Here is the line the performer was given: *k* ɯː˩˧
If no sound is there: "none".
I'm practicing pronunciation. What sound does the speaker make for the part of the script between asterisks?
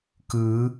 k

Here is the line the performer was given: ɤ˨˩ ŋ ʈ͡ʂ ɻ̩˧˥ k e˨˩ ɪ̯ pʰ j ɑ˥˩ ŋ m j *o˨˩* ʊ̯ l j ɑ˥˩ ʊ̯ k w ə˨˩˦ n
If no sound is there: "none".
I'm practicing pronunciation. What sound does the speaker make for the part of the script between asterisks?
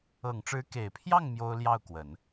o˥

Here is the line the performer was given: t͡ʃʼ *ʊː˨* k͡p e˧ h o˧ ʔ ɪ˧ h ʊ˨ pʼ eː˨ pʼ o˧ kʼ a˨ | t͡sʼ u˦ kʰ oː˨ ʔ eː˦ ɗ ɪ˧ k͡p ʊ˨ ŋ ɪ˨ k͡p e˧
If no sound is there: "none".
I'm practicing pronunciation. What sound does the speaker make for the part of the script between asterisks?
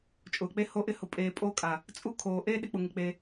ʊː˨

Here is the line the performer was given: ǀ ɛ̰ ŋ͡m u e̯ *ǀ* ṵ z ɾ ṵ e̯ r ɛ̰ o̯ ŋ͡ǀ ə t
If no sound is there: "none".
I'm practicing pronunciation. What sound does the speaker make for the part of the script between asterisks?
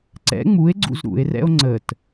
ɡ͡ǀ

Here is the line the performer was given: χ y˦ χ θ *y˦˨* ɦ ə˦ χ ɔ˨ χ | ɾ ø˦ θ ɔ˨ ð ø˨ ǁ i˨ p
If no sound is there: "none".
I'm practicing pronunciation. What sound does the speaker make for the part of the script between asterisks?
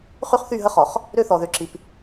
y˦˨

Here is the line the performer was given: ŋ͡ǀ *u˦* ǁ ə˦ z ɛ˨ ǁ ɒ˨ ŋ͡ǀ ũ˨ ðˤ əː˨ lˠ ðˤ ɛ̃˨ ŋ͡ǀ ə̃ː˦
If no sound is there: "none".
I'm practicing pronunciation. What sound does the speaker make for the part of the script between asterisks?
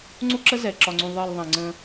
u˦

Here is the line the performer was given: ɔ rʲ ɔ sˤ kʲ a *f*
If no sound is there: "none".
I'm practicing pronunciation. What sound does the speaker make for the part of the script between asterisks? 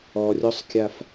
f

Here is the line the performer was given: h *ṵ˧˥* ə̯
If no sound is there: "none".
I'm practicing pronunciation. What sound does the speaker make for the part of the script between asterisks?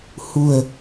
ṳ˨˩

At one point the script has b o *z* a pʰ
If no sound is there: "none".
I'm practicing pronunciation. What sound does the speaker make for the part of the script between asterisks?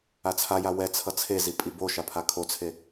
ʃ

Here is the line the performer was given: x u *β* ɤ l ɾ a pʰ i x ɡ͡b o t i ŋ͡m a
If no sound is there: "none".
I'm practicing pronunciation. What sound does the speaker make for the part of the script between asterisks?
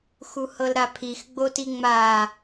h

